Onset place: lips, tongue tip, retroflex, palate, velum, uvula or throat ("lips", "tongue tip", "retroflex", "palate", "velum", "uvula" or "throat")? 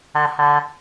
throat